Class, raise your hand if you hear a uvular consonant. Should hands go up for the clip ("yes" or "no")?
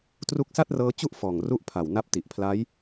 no